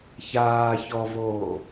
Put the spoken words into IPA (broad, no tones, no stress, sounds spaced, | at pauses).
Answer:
ç aː ç ɔ v oː